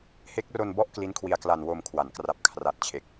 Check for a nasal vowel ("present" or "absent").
absent